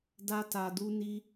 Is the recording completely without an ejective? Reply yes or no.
yes